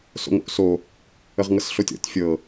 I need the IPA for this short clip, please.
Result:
s o̰ ŋ o̰ ʔ s o | ə ʁ ŋ ɤ s ɬ o tʲ ɔ̰ tʲ fʲ ɤ

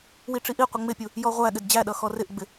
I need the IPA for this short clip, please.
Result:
w i ʈ͡ʂ i ʔ i qʷ ɪ ŋ͡m ɪ pʲ u | j ɔ ʁʷ æ ɠ ɪ d d͡ʑ æ ɗ ʌ x ɔ r ɪ ʔ ɡ͡b ɪ

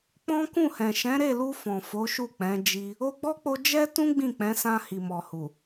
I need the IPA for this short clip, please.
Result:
k͡p ɔ̃˦ k ũ˦˨ h ɛ̃˨ ʃ ɛ̃˨˦ ɾ e˦˨ l u˧ f ɔ̃˨ f o˨˦ ʃ u˦˨ k͡p ɛ̃˨˦ d͡ʒ i˧ | o˧ ɡ͡b ɔ˦ k͡p o˧ d͡ʒ ɛ˦ t ũ˦ ɡ͡b ĩ˦˨ k͡p ɛ̃˨˦ s ã˧ h i˨ m ɔ˨ h u˨

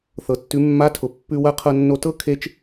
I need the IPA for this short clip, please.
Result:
θ ɤ˩ tː ʉ˩˧ mː a˧˥ tʰ ʊ˩ pː ʉ˧ w ɐ˧˥ qʰ ɤ˧ nː o˧ t ɤ˥ kʰ e˥ t͡ʃ

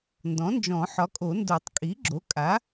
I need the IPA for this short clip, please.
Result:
n d ɔ̃˩˥ n d͡ʒ ɔ̃˨˩˦ ħ ɒ˩˥ kʼ o˨˩˦ n d o˨˩˦ tˤ kʼ i˩˥ ɡ͡ǁ o˩˥ kʼ a˩˥

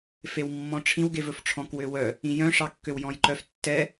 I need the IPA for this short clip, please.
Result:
f e w mː ɔ̃ ʈ͡ʂʰ ĩ w ɡ e v ɵ f ʈ͡ʂʰ ɔ̃ k w ø w œ | ĩ j œ̃ ʂ ɑ kː ø w j ɔ̃ j ǃ œ f tː ɛ

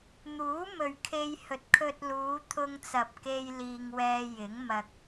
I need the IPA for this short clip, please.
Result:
n̪ uː˨˥ m ɵ˨ ɥ kʰ e˧ j h ɵ˨˥ t̚ kʰ ɵ˧ t̚ l uː˨˧ t̪ʰ ʊ˧ ŋ t͡s ɐ˨ p̚ k e˧ j l iː˧ ŋ w ɛː˧ j ɪ˨˥ ŋ m ɐ˧ k̚

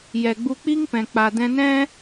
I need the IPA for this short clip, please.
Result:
j ɛ˨ ɡ͡b u˧ k͡p i˦ ŋ p ɛ̃˨ k͡p a˨ d ɛ̃˧ n ɛ̃˦

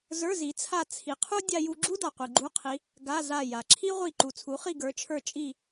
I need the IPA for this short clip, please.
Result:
z ə˞˧˥˧ z i˨˦ t͡sʰ a˦˨ t͡sʰ i˨˦ qʰ u˥ dʲ a˥ j u˥ ɡ͡ǁ u˥ d a˨ qʷ i˨ ɡ͡ǃ u˧˥˧ qʰ i˨˦ | ɡ a˧˥˧ z a˦˨ j a˨ ǁʰ i˥ ʁʷ i˦˨ ǃ u˨ t͡sʰ u˨˦ χ i˦˨ ɡ ə˞˨˦ t͡ʃʰ ə˞˦˨ t͡ʃʼ i˦˨

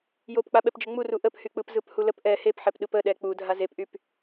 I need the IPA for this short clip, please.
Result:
j o p k͡p a ɓ ɛ p d͡ʒ ə ŋ͡m u r u ʔ ə p h y k͡p ɯ p z ɯ p h u l ə p ʔ ɛ h e p ħ ɛ p ɗ ɯ p ə ɗ ɛ k͡p u dʱ a z e p ʔ y p

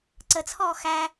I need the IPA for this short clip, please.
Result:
ǀ ə t͡sʰ ɔː x æ

